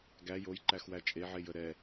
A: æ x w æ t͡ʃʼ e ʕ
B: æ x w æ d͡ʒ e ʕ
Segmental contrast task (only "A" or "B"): A